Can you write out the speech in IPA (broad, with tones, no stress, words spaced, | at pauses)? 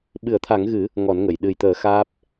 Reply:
ɓɨ˨˩˦ə̯t̪ʰa˨˩˦ŋɣɨ˨˩˦ | ŋɔ˨˩˦nŋə˨˩˨j ɗɨ˨˩jt̪əː˨˩˦ xaː˦˥p̚